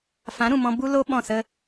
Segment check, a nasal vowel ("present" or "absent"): present